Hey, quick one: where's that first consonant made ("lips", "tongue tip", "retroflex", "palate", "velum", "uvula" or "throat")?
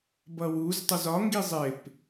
lips